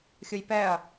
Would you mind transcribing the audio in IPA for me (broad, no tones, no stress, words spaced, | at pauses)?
xʲɯjpɛɐ̯